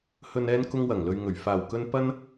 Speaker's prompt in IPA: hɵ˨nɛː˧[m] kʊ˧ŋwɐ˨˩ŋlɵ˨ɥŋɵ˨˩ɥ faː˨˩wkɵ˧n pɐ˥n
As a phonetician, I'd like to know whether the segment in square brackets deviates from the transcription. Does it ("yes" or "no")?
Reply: yes